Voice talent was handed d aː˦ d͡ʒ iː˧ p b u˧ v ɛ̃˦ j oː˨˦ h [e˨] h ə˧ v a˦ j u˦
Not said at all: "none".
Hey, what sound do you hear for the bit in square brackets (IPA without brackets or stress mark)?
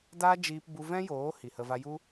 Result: i˨